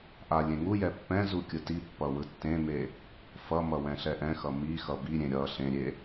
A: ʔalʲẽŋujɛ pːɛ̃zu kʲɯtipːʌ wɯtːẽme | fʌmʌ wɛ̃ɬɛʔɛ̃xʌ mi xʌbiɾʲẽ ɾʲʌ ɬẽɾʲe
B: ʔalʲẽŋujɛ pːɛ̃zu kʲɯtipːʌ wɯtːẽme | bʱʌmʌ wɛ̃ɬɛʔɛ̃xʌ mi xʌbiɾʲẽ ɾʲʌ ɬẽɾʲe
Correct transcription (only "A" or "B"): A